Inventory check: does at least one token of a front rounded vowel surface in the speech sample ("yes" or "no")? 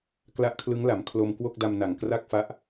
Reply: no